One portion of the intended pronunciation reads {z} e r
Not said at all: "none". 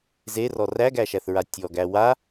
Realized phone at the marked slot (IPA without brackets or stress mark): z